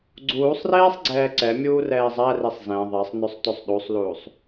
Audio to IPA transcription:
ɡ͡ǀ uː sˤ r eː sˤ ɡ͡ǀ ɛː ǀ ɛ mʲ uː r ɛː zˤ æ r e sˤ z ɛ̃ ðˤ ɛ sˤ n ɵ sˤ t ɵ sˤ ɗ u sˤ l uː sˤ

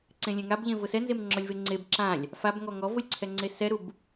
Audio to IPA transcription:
ǀ ẽ lʲ ẽ ŋ a b ʎ ẽ v ʊ s ɛ n z e m ŋ͡ǁ ɔ lʲ v e ŋ͡ǀ e b ǁ ã lʲ | f a b ŋ ɔ ŋ ɔ v ʊ lʲ ǀʰ ɛ ŋ͡ǀ e s ɛ ɾ u b

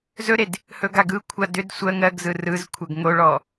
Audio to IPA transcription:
z ɵ ɾ e d | h ɵ ɡ a ɡ ɯ kʷʰ a d ʏ d sʷ ɜ ŋ ɜ ɡ z ɯ r ɯ z kʷʰ ɜ ɡ ŋ o ɭ ɔ

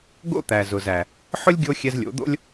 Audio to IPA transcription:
ɡ o̰˦ t̪ æ˨ z ʊ˨ z æ˨ | ħ ʊ˦ lʲ ɡʲ o˧ xʲ ɛ˧ z lʲ o̰˨˦ d̪ o̰˦ lʲ

